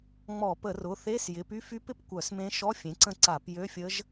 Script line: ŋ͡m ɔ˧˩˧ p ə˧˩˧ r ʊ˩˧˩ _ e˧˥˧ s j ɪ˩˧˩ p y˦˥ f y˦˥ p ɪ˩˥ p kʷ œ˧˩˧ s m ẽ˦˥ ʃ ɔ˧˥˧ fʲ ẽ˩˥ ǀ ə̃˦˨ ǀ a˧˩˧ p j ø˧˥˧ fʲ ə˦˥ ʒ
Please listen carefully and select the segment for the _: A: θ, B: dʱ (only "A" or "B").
A